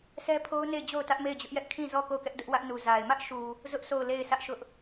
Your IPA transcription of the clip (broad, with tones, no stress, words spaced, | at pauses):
sʰɛ˦pʰo˦ʊ̯ne˦˨ɪ̯d͡ʑo˦˨ʊ̯ tä˦ʔme˦˨ɪ̯d͡ʑʊ˦ʔjɛ˦ʔ kʰĩ˦˨zɔ˦˨ ko˦˨ʊ̯kɛ˦ʔdʊ˦ʔwä˦ʔ nu˨za˨ɪ̯ mä˦ʔʃu˨ | zʊ˦ʔ sʰo˦˨ʊ̯le˦˨ɪ̯sä˦ʔʃʊ˦ʔ